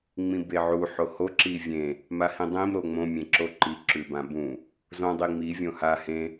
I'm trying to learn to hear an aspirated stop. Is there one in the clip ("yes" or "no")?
no